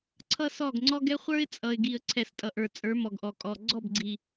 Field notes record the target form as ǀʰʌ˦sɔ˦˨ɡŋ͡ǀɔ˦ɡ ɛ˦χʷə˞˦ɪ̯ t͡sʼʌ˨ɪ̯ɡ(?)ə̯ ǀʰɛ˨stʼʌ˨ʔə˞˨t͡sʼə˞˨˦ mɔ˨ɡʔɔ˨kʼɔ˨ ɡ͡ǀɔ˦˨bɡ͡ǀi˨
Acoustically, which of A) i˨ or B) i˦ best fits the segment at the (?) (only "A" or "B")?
A